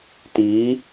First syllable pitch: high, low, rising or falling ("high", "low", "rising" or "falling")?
rising